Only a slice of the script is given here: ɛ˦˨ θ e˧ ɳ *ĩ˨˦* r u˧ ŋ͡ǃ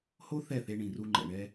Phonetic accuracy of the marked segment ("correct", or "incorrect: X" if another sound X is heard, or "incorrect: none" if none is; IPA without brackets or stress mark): incorrect: ĩ˨